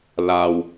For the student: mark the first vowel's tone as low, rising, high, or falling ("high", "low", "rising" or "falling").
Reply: low